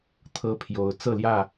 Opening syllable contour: high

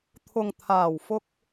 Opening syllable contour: low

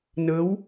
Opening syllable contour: rising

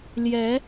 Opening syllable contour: rising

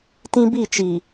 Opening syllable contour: high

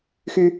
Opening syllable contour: high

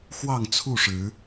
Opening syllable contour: falling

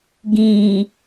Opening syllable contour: low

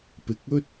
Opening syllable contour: low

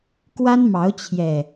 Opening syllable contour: high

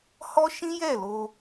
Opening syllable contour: high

